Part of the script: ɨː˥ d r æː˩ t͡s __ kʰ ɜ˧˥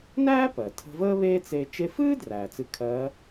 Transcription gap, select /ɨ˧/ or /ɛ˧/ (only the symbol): ɨ˧